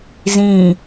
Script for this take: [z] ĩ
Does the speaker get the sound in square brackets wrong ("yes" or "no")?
no